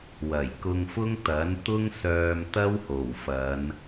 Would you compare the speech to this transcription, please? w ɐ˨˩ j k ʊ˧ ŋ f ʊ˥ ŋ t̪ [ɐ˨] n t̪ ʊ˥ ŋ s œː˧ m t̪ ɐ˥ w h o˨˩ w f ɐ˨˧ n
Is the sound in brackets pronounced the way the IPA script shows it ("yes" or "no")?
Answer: no